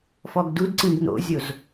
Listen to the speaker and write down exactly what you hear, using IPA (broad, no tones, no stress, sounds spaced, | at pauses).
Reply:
f ɔ ɡ d u d ǀ ĩ ɡ n o̰ zʲ o z